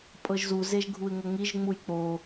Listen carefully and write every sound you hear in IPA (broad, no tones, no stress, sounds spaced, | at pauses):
pʼ ɤ ʒ z u z e ʒ ɡʱ u ɪ̯ ŋ ɤ ŋ i ʒ ŋ͡m u j k͡p o